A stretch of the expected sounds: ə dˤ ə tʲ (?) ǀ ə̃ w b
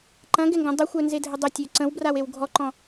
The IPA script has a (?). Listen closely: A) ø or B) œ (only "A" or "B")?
A